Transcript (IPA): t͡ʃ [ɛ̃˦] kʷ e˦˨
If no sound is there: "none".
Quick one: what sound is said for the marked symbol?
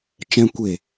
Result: ɛ̃˦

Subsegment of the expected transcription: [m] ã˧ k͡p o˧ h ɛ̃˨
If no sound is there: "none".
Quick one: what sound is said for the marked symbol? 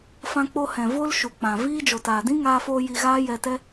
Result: f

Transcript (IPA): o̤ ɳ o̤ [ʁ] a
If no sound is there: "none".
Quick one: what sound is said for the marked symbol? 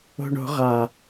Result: ʁ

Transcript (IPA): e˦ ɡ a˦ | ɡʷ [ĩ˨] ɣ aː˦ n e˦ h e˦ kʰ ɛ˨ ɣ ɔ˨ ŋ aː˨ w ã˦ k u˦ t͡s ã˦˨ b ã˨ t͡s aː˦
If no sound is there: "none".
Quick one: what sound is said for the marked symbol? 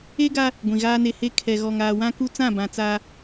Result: ĩ˨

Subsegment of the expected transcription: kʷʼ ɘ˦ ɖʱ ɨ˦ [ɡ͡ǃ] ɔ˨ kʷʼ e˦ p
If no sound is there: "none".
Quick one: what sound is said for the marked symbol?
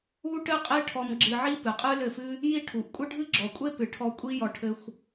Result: ɡ͡ǁ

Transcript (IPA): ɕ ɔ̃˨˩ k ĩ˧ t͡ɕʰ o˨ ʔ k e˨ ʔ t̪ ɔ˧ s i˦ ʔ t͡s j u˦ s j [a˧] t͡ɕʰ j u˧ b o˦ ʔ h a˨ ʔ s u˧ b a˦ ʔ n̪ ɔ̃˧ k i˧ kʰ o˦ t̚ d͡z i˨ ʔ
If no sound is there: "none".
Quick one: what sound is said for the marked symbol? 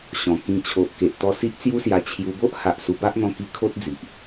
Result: a˧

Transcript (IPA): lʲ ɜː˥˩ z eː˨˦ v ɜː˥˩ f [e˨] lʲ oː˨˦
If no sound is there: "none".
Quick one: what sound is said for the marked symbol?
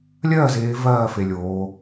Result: e˨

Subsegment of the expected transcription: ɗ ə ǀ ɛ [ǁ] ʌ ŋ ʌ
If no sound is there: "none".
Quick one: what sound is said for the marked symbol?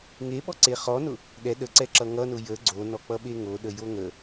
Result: ǁ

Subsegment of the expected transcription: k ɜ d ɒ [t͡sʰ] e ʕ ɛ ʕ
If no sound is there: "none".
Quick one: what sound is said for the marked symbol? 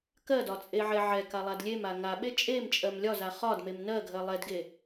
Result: t͡sʼ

